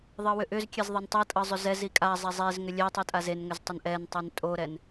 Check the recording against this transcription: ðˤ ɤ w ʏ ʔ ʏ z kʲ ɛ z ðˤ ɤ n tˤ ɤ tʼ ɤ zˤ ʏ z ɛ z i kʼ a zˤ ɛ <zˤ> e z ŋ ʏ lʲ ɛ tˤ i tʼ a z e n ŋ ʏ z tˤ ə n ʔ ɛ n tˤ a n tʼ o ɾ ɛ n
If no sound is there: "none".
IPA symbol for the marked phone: zˤ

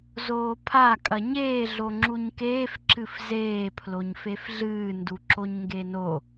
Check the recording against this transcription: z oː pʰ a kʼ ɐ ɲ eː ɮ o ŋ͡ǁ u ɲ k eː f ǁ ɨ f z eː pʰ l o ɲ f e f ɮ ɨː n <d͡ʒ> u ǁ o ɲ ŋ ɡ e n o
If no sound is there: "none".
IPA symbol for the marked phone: d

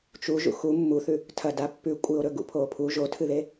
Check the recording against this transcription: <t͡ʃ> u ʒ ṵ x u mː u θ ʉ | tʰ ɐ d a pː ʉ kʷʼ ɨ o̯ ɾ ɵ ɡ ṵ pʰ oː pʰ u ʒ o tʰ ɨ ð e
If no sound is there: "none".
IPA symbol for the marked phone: t͡ʃ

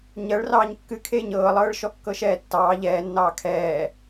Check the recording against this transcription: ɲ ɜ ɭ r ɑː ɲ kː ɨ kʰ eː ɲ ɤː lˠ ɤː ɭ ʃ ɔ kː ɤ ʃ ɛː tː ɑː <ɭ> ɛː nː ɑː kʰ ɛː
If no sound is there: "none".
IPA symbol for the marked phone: ʎ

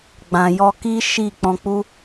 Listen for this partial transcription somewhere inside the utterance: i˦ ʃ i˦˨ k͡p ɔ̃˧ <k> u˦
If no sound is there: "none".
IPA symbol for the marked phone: k͡p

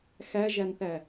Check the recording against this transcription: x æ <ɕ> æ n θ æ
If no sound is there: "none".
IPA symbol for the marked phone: ʒ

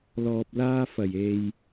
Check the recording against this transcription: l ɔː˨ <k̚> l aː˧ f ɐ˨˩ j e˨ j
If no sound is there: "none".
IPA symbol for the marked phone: p̚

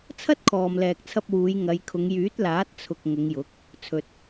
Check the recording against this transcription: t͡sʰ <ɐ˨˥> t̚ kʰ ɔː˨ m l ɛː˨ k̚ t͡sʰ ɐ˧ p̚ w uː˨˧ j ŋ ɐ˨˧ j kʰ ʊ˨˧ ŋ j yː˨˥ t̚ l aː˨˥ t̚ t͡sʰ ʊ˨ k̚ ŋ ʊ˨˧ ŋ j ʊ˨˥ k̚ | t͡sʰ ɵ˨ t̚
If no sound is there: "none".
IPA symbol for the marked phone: ɐ˥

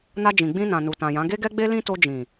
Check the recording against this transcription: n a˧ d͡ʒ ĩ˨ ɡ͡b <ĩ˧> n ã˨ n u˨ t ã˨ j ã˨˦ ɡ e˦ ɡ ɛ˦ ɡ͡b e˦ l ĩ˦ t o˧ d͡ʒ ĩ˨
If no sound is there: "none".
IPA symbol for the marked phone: ĩ˧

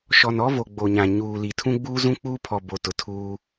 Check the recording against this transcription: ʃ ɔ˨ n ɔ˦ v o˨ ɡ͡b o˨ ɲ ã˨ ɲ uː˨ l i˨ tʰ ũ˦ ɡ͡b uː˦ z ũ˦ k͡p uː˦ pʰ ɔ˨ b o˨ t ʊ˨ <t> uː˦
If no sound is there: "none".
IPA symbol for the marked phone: tʰ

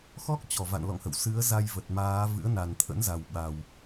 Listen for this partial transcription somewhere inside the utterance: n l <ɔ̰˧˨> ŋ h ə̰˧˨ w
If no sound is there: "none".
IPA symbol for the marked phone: ɔ̰˧˨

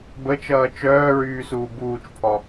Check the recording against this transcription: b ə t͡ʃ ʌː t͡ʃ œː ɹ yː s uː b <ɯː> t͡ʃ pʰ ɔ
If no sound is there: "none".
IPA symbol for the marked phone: uː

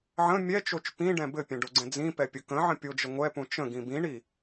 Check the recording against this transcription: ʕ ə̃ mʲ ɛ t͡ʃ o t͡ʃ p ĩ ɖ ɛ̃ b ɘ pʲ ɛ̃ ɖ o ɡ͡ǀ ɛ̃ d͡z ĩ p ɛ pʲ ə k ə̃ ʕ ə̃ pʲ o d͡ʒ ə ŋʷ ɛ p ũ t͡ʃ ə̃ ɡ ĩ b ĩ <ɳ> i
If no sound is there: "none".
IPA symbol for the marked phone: ɳ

